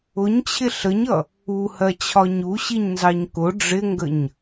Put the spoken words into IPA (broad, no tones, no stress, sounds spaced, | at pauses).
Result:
ʊ ɲ t͡ɕʰ ɪ ɬ ə ɲ ʌ | u h ɜ t͡ɕʰ ɒ ɲ u ɕ i ɲ n z ɑ ɲ k ʊ ɖ͡ʐ ɪ ŋ ɡ ə ɲ